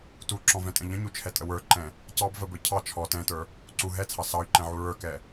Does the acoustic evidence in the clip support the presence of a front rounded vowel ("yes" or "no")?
yes